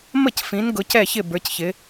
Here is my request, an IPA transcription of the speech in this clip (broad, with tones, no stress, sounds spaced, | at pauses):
m ə˥˩ c f ĩ˩˧ n ɡ ʊ˩˧ c ɛ˥˩ ç ɪ˥˩ b ə˞˩˧ c ç ɪ˩˧